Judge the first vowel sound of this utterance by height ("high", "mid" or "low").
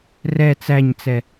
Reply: mid